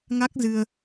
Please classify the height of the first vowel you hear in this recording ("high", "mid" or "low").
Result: low